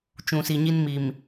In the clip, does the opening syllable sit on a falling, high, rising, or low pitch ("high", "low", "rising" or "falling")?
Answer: low